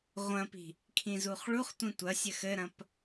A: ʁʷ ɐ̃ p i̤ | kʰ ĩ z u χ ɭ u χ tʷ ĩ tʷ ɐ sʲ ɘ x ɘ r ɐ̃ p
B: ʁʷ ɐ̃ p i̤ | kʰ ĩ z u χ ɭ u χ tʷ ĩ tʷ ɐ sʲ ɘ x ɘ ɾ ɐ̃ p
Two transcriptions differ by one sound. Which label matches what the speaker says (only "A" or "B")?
B